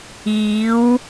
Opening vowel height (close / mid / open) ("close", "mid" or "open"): close